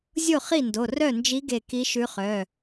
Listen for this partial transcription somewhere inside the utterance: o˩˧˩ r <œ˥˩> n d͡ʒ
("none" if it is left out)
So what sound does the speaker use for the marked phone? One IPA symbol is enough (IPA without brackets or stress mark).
œ˥˩